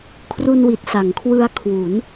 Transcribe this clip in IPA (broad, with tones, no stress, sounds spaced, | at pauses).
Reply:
kʰ r u˧ n w i˨˩ t̚ s a˩˦ ŋ kʰ w ɯ˧ a̯ kʰ w u˩˦ n